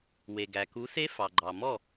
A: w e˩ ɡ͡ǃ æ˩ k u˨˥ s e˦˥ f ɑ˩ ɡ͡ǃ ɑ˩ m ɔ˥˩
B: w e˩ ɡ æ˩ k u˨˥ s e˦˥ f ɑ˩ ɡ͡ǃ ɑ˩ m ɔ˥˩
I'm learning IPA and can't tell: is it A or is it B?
B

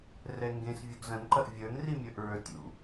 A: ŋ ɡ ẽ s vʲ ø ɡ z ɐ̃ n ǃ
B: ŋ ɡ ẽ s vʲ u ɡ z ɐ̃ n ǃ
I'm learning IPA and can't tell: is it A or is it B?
B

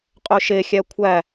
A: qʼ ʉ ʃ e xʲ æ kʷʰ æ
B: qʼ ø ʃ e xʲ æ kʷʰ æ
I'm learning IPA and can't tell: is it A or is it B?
B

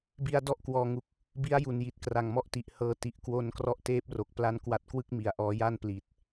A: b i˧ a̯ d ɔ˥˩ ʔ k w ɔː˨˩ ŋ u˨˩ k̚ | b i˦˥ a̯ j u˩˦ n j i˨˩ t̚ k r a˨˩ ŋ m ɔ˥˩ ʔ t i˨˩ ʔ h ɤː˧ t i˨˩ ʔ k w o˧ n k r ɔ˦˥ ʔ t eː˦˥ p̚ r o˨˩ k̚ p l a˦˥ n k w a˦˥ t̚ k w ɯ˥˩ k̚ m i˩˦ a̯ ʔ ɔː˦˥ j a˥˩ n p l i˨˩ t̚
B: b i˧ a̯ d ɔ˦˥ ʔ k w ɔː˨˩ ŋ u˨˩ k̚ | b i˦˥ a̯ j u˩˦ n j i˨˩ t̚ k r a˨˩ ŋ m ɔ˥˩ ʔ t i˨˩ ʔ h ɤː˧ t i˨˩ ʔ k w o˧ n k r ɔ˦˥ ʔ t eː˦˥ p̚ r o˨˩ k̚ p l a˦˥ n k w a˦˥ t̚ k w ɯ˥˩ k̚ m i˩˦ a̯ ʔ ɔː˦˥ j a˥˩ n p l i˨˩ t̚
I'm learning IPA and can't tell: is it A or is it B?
A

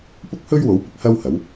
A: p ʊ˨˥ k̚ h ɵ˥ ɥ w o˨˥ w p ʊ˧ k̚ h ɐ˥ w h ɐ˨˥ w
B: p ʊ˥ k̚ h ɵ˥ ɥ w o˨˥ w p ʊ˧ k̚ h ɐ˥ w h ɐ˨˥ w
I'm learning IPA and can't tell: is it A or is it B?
B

